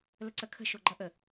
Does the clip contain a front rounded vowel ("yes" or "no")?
no